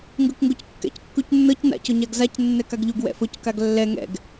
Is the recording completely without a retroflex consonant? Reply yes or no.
yes